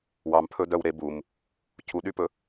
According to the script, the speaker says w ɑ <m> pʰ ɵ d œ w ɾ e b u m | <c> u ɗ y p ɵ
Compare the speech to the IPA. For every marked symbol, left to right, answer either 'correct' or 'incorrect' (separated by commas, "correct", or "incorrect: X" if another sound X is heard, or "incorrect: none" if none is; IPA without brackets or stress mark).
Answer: correct, incorrect: cʰ